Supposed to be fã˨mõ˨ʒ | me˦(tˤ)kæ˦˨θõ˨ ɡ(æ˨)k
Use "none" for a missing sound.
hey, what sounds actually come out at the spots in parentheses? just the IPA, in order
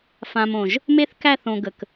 θ, ə˨

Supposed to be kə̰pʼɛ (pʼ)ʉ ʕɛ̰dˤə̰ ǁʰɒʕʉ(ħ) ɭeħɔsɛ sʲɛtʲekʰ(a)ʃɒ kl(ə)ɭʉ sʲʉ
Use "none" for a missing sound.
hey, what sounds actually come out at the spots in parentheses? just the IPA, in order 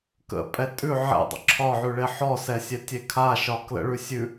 tʼ, none, a, ə̰

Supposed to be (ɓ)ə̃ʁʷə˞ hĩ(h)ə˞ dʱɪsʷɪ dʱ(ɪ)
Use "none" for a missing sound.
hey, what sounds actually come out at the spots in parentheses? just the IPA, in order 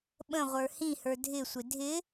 ɓ, h, ɪ

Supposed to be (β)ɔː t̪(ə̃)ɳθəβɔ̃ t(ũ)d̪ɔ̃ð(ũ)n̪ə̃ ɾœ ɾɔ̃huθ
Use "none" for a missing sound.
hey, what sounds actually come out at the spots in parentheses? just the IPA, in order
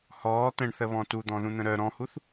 h, ə̃, u, ũ

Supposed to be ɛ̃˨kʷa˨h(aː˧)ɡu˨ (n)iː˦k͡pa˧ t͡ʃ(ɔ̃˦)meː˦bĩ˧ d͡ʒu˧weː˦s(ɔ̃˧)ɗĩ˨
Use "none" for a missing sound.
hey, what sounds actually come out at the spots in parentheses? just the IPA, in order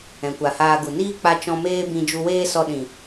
aː˧, n, ɔ̃˧, ɔ˧

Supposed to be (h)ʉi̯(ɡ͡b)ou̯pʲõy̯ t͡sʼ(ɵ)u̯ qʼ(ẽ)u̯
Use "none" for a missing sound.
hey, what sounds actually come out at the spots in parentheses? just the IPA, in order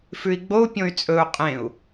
f, ɡ͡b, ɵ, ẽ

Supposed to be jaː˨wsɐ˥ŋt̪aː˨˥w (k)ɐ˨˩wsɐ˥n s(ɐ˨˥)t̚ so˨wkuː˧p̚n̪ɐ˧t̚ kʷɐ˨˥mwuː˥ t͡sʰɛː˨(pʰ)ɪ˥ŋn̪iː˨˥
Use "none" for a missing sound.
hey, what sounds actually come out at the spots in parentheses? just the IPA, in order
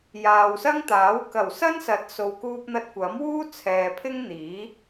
k, ɐ˨˥, pʰ

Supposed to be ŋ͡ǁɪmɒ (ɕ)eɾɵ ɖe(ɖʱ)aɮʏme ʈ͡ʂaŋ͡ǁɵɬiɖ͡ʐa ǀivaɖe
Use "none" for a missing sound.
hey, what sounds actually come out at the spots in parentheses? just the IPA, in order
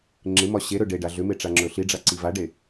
ɕ, ɖ

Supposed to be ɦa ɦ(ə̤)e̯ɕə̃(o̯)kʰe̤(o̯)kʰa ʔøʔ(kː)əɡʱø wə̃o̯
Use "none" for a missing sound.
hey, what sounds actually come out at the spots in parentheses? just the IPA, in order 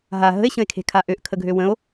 ə̤, e̯, none, kʰ

